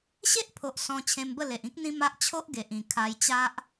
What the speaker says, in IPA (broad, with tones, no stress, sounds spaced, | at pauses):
ɕ e˦ ʔ pʰ o˨ ʔ s ɔ̃˧ t͡ɕʰ ẽ˧ m b ə˥˧ l e˨ ʔ ĩ˦ k̚ n̪ ĩ˦ m a˦ ʔ t͡ɕʰ o˦ ʔ ɡ e˨ ʔ ĩ˨˩ kʰ a˧ j t͡ɕ a˦ ʔ